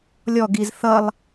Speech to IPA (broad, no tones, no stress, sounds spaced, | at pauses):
lʲ ɔ ɡ i z θ ʌ lˠ